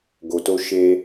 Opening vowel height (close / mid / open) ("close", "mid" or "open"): mid